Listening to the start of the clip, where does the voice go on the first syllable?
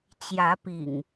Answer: rising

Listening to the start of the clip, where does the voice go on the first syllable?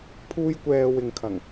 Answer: high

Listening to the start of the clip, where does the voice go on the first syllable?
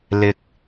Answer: low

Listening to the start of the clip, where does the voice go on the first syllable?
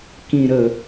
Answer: low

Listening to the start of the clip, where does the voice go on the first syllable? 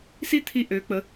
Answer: high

